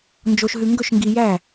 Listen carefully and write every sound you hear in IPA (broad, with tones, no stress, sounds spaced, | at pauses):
n d͡ʒ o˨ ʃ ɦ ʉ˨ ŋ ɡ ɵ˥˩ ʃ ŋ ɡ i˨ j æ˥˩